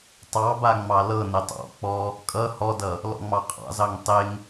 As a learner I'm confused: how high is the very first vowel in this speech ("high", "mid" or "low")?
low